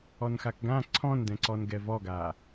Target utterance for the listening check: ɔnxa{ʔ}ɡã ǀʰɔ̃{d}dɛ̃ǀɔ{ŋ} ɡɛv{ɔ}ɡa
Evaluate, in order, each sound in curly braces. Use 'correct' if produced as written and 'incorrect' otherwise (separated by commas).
incorrect, incorrect, incorrect, correct